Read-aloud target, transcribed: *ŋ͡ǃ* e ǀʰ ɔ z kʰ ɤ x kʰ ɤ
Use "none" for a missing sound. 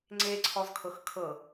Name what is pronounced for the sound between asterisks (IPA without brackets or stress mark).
ŋ͡ǀ